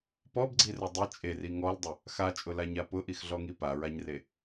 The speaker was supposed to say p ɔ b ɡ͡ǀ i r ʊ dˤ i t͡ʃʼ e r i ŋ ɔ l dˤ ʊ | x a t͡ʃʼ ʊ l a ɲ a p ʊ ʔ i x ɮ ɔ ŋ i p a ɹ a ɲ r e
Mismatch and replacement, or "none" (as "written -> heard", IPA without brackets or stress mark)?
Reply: none